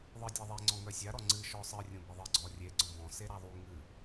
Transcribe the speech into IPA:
ðˤ ɨ dʲ a ðˤ e ŋ͡ǀ ɔ̃ ŋ œ sʲ a ɾ ɔ ŋ͡ǀ ɨ ʃ ɔ sˤ ɨ rʲ ũ b e ðˤ ɨ ɡ͡ǀ ɔ rʲ e ɡ͡ǀ ɔ̃ b ɔ̃ s e ɾ a ðˤ u ŋ ɨ

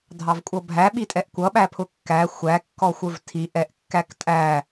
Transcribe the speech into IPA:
dʱ ɑ v kʷʼ ʌ bʱ æ ɓ i tʼ ɛ ʔ kʷ ʌ ɓ æ pʰ ʊ kː æ xʷ æ kː ɔ xʷ ə˞ v tʰ i ʔ ɛ ʔ kː æ k tʼ æ

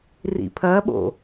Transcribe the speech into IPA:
r ḭ pʰ ɐ ɓ o̰

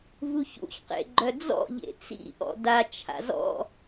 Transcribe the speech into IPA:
v u ç ṵ ç q ḛ ɡ͡ǃ œ d͡z ɔ̰ ʎ ḛ t͡s ḭ ʔ ɔ̰ d a t͡ʃʰ a̰ z ɔ̰

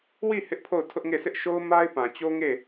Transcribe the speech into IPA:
w i˦˨ h ɪ˦ ʔ pʰ o˦˨ ʊ̯ tʰ ʊ˦ ʔ ŋ e˦˨ sʰ ɪ˦ ʔ ʃ o˦ ʊ̯ m a˦ ɪ̯ p ã˨ t͡ɕ o˦ ŋ e˦˨

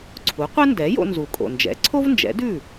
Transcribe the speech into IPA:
ǀʰ u˩˥ qʷ ɛ˥ n d ɛ˩˥ j o̰˧ n z u˩ kʼ o̰˩ n d͡ʒ ɛ̰˩˥ ǀʰ o˥ v n d͡ʒ ɛ̰˩˥ d ʉ˥˩

